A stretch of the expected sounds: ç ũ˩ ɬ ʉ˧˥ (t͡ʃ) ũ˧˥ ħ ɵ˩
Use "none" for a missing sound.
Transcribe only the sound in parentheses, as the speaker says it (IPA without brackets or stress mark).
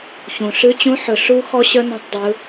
t͡ɕ